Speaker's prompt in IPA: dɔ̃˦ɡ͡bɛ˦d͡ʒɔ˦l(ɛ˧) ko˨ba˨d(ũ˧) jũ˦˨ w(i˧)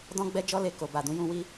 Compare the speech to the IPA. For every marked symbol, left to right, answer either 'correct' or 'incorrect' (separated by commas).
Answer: incorrect, incorrect, correct